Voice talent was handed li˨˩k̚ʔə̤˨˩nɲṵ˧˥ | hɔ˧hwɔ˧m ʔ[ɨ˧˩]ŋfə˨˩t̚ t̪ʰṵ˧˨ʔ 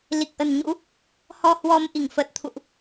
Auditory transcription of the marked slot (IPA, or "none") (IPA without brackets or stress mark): i˧˩